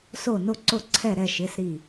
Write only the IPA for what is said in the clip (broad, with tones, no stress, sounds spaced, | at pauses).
s o˧˩ n o˧˩ ǀ o˧˩ ǀʰ ɛ˧˩ ɾ ɛ˧˩ ʃ ɪ˩˧˩ s ɾ i˧˩